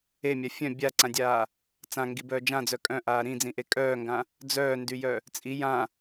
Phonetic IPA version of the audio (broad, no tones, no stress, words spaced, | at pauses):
emʲa fʲœ̃ bʲaǀãdʲaː | t͡sãŋɡibœː d͡ʒãd͡zœ kʼœ̃ʔaː ɾĩd͡zĩʔe kʼœːŋɡã | d͡zœːndyjœ | t͡sʼi jã